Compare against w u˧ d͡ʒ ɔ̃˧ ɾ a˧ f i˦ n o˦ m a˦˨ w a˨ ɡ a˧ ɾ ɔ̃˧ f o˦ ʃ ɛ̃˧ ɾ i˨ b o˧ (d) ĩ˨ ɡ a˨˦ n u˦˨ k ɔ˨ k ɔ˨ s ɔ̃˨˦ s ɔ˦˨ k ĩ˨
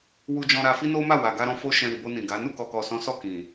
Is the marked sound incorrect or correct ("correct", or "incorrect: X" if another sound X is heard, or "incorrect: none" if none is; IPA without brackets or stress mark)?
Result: incorrect: n